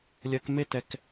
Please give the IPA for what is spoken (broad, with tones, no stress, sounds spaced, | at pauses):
lʲ ɜ˧ k m e˦ t ɛ˧ k